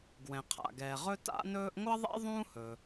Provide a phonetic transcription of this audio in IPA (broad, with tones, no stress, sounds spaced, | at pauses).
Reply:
ɡ w ɛ̃˩ qʰ a̰˩ ɡ ɛː˩ ʁ ɵ˥ t a̰˥ n ɵː˥ ʔ ŋʷ ʌ˥ ðˤ ɛ̰˥ ðˤ ũː˥ h ɵ˩